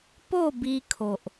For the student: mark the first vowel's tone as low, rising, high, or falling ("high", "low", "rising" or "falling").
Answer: falling